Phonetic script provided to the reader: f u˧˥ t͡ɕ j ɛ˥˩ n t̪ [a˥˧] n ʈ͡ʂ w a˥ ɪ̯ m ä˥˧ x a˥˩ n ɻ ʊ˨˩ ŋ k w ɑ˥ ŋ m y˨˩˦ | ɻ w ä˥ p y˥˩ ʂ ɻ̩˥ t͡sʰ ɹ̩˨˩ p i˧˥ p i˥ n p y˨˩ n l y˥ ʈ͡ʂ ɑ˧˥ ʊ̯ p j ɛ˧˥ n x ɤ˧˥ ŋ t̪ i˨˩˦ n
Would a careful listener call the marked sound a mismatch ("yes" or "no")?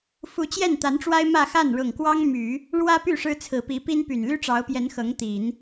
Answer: yes